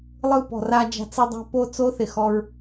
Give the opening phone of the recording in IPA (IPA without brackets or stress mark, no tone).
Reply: lˠ